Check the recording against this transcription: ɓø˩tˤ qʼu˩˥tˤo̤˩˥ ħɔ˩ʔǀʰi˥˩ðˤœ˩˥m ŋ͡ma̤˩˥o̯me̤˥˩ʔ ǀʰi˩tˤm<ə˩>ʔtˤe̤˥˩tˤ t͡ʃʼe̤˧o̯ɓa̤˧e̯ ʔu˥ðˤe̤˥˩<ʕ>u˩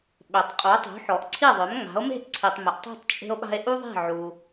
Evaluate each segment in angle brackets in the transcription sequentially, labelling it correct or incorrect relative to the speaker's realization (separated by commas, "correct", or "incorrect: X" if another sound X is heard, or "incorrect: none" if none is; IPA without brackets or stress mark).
correct, correct